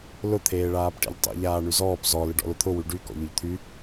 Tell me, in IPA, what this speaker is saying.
l ʊ t̪ʰ eː ɭ aː p ʈ ḛ ʎ tˤ ḭ ʎ aː ɳ y z ɔː p z ɔ l ɪ ɖ ɔ̰ l ʊ t̪ʰ ʊ w y ɖ y k ɔ̰ ʎ ʊ ʎ t̪ʰ y

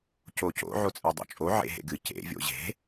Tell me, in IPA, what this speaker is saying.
c o c o̰ ʕ o t͡sʼ e dˤ o̰ t͡ʃʼ o ʕ ḛ ɦ ḛ ɡ ɨ c ḛ vʲ o̰ ʑ e̤

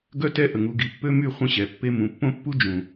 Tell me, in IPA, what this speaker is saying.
ɡ œ˦ t ɛ˦ ʔ ə˨ ŋ u˨ ɡ i˨ pː ø˦ m y˦˨ χʷ ə̃˦ ɕ ɛ˨ pː e˦ m ũ˨ pː õ˦ pː u˦ d͡ʒ ũ˨

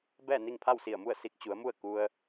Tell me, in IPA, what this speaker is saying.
b ɛː˥˨ n i˥˨ ŋ pʰ a˥˨ w s i˧˩ ə̯ m u˥˨ ə̯ s i˧ k̚ t͡ɕ u˩˧ ə̯ m u˥˨ ə̯ k u˧ ə̯

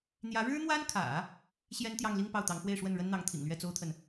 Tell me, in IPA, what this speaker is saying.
n̪ j ä˧˥ ɻ ɻ̩˥ n̪ w a˥ n kʰ ä̰˨˩˦ | ɕ j ɛ˥ n t̪ j ɑ˥˧ ŋ l i˥˧ ŋ p ɑ˥˩ ʊ̯ t̪ ɑ˧˥ ŋ x w e˥˧ ɪ̯ ʂ w ə˥˩ n ɻ ə˥ n n̪ ɑ˧˥ ŋ t̪ʰ ḭ˨˩ ŋ l ɥ ɛ˥˩ t͡s o˥ ʊ̯ t̪ʰ ə˨ n

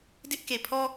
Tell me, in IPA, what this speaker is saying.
d ɪ˦ ʔ k e˨ pʰ ɔ˦

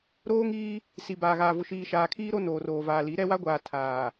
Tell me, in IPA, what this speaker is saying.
ɾ oː˦ ŋ iː˦ | s i˨ b aː˨ ɣ aː˨ v ʊ˨ ʃ iː˨ ʃ aː˨ kʰ iː˦ ɾ o˦ n oː˨ r oː˨ v aː˨ l i˨˦ ɾ ɛ˦ w a˦ ɡʷ aː˨ tʰ aː˨

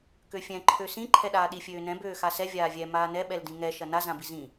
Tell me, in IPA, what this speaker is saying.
k ø fʲ ɛ̃ ǃʰ ø s ĩ ǃʰ ɛ ɗ aː ɗ i fʲ øː n ɛ̃ b øː x a s ɛ vʲ aː vʲ ɛ m aː n ɛ ɓ ɛ l d ĩ ŋ ɛ ʃ ɐ n a z ã b i z ĩ

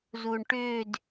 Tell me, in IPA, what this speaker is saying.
z uː ɳ ʈ ʏː d

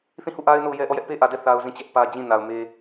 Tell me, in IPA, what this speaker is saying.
θ ĩ˦˨ h u˦˨ ʔ a˦ ɪ̯ n o˦˨ ʊ̯ j ɛ˦ ʔ ɔ˦˨ j ɛ˦ ʔ p e˦ ʔ ä˨ d ɛ˦ θ a˦ ʊ̯ z ĩ˦˨ t͡ɕ ɛ˦ ʔ p ä˦ d͡ʑ ĩ˦˨ n a˨ ʊ̯ m e˦

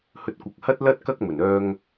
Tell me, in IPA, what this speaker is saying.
h ɵ˧ t̚ kʷ ɐ˨˥ k̚ h ɐ˥ t̚ l ɐ˥ t̚ k ɐ˥ k̚ m ɵ˨˩ n œː˧ ŋ

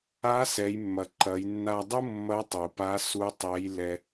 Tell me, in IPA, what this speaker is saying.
a˧˥ s ɛ˩˧ j mː ɐ˩ ǃ ɐ˩˧ j nː a˧ dˤ u˥ mː ɐ˧˥ tˤ u˩ p a˧˥ s u˧˥ tˤ ɛ˧˥ j l ɛ˧

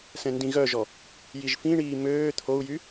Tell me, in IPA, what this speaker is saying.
s ɛ̃ n d ĩ ɣ œ ʒ ɔ | j i ʒ f ĩ ɳ iː m øː t̪ʰ o u̯ j y

